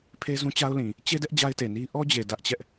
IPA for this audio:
pʰ e˦ z ũ˦ t͡ɕ a˦ ʊ̯ l ĩ˨ | t͡ɕ e˦ d ɛ˦ ʔ d͡ʑ a˦ ɪ̯ t e˨ n i˦ ʔ ɔ˦ d͡ʑ e˨ d ä˦ ʔ t͡ɕ ɛ˦ ʔ

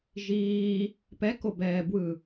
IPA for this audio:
ʒ iː | p ɛ k o b ɛː b w ɯ

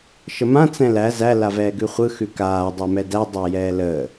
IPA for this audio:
ʃ ə m ã t͡s ɛ̃ l æ z æ l a v ɛː ɡ ʉ χʷ ɯ x ʉ k aː dˤ a m ɛ d æ dˤ əː j ɛː l əː

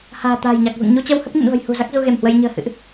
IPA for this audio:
h a̤ː˨˩ t̪ a̤ː˨˩ j ɲ a˨˩ k̚ v ɨ̰˧˨ ŋ ɲ u˧ t͡ɕ ə˧ w h ə˦˥ p̚ ɲ ə̰˧˨ n v ə̤˨˩ j h ṳ˨˩ z a˦˥ k̚ z u˧ ɣ e˧˩ m h w ə˧ j ɲ ə̤ː˨˩ h ɨ̰˧˨ ʔ

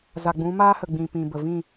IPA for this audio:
z a˨ ɡ͡b ũ˨˦ m aː˦ h ə˨ ɡ͡b ĩ˨ p ĩ˨ b ə˨ v ĩ˦˨

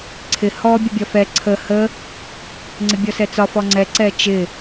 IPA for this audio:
ǀʰ ɪ h ɔ bʲ ə bʲ ɒ f ɛ ǀʰ ə h ə | ŋ͡ǀ ɪ bʲ ɔ s ɛ t͡s ɒ f ɔ ŋ͡ǀ ɛ ǀ ɛ t͡ʃ ɪ

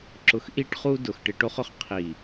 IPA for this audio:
ǁ ʊ˧ x ʔ i˦ ʈ χ u˦ d ʊ˧ x ʈ ɪ˧ ʈ o˦ χ ʊ˨ χ qʰ i˨

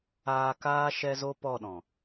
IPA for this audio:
aː˧ k aː˦ ʃ ɛ˦ z o˦ p ɔ˦˨ ɗ ɔ̃˨

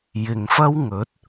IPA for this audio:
j ɪ˨ ŋ f ɐ˥ w ŋ ɵ˨˥ t̚

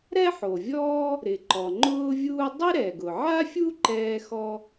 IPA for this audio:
ɾ ɛ˥ ħ o˩ vʲ ɔː˥ | ɾ ɪ˩ ǃ ɔ˩ ŋ͡ǃ ʊː˥ vʲ uː˥ dˤ ɪ˥ ɾ ɛ˩ ɡ ʊ˩ ʕ a˥ fʲ u˥ ǃ ɛː˥ x ɔ˥

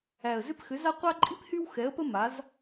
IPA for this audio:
æ˨˩ ə̯ z ʏ˥ p x ʏ˨˥ z a˥ qʷ a˥ ǃʼ i˥ p h y˥ w x ɛ˨˥ ə̯ p ə˥ m a˨˥ z

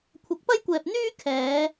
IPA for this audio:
kʷʰ ɐ˨˥ k̚ p ɐ˥ j kʷ ɛː˨ p̚ n̪ yː˥ kʰ ɛː˨˧

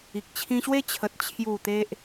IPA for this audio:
i˨ k̚ t͡ɕʰ ĩ˧ ɕ w e˦ t͡ɕʰ ə˨ t̚ t͡ɕʰ j u˨˩ t̪ e˦ ʔ

